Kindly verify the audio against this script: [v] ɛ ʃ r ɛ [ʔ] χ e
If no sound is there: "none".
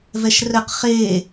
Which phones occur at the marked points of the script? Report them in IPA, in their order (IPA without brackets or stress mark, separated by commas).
v, q